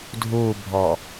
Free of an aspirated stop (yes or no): yes